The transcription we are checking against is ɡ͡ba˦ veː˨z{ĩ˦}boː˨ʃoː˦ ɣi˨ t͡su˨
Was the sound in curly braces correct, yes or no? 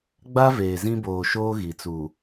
yes